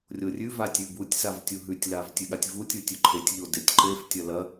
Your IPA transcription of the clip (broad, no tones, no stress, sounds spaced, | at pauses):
rʲ o rʲ ʉ v a tʲ ʉ b u tʲ s a v tʲ u ɦ ʉ tʲ l a v tʲ ʉ ɠ a tʲ v u tʲ u tʲ ʉ ǃʰ e tʲ ʎ o d e tʲ ǃ e f tʲ ɐ l ɐ